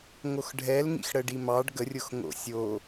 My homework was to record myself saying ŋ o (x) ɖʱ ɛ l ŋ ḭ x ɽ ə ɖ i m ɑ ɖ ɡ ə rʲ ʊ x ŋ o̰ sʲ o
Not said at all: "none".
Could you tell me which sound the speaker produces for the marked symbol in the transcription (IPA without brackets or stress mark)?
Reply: x